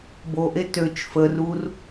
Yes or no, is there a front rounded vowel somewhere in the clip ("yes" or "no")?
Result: yes